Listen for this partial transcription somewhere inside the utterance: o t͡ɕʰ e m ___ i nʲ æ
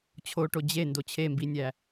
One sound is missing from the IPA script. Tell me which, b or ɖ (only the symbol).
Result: b